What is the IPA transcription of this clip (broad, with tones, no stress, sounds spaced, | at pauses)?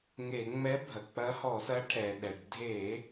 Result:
ŋ e˧˩˧ ŋ͡m ɛ˧˥ bʱ ɐ˩ k͡p ɐ˧˥ h ɔ˧˩˧ s ɐ˧˥ ʈʰ ɛ˩ ɗ ɛ˩ ɖ dʱ e˧˩˧